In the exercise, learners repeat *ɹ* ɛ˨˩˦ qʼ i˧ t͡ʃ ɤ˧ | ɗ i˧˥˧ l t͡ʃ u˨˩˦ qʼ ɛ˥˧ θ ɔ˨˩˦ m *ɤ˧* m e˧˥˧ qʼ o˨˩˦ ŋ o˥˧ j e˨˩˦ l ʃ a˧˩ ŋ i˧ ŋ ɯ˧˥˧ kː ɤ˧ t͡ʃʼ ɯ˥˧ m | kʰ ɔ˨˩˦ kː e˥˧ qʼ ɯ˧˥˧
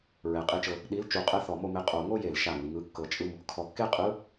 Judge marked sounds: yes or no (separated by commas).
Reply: yes, no